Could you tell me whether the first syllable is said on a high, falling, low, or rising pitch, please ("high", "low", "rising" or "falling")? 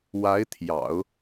rising